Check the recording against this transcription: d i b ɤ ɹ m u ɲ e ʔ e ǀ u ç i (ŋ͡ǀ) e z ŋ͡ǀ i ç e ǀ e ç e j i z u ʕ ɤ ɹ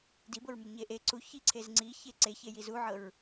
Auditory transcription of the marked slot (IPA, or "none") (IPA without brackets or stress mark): ǀʰ